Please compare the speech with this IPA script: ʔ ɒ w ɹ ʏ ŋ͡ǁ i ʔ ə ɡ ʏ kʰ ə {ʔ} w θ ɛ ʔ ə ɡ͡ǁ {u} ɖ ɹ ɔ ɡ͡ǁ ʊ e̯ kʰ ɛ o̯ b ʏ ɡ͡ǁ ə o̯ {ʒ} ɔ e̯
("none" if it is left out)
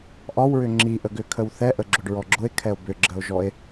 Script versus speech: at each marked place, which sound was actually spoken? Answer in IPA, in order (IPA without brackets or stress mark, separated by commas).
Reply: none, ʊ, ʒ